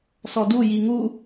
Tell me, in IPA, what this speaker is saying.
s ɔ d u j i ŋ u

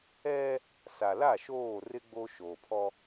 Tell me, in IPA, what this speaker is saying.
ɛ˦ | s a˨ l a˦˨ ʃ oː˦˨ r ɪ˦ ɡ͡b o˦ ʃ o˨ pʰ ɔ˦

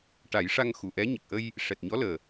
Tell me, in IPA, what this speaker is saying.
ʈ a˨˩˦ j ʂ a˧ ŋ x u˨˩˨ ʔ ɛ˧˥ ɲ ə˨˩ k̚ ʔ ə˧ j | ʂ ɛ˨˩ t̚ ɲ ɔ˧˥ l əː˨˩

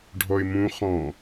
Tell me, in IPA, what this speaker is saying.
ɖʱ ɔ ɪ̯ m ũ χ ɔ̃

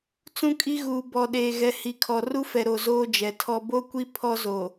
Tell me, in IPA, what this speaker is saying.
t͡s ũ˦ kʼ i˦ ɣ uː˨ b ɔ˨ ɗ eː˨ ɣ ɛ˨ h i˨ kʰ ɔ˨ r u˦ f ɛ˨ ɾ o˨ z oː˦ d͡ʒ ɛ˨ tʰ ɔ˦ b o˦ kʷ i˦ pʰ ɔ˦ z o˨

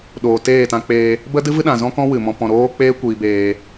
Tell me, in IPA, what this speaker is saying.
ɗ oː˨ t eː˦˨ t ã˧ k͡p eː˧ | b ə˦ d ɨ˦ v ɨ˦ ɗ ã˨ z ɔ̃˦ k ɔ̃˦ w ɨ˨ m ɔ̃˨ p ɔ̃˨ ɾ oː˦ k͡p eː˦ kʷ iː˨ b eː˨

